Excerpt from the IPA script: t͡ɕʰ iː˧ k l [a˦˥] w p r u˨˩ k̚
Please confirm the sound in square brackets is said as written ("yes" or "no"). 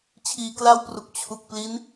no